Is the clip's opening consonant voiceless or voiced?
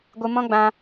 voiced